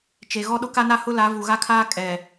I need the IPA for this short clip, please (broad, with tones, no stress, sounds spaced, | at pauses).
t͡ʃ e˨ ɣ ɔ˦ ɗ ʊ˦ k a˦ n a˦ h ʊ˦ l a˨˦ v u˨ ɣ a˦ kʰ aː˦ kʼ ɛ˨